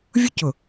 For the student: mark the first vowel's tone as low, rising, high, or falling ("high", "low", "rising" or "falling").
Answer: high